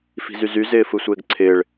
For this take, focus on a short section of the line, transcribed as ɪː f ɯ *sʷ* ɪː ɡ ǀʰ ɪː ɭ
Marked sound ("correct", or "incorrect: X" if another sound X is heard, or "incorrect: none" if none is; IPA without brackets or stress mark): correct